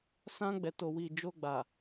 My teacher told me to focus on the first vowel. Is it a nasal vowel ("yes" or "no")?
yes